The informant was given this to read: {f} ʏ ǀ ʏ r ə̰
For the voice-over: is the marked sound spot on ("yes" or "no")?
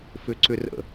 yes